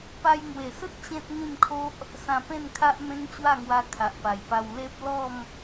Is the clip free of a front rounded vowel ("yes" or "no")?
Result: yes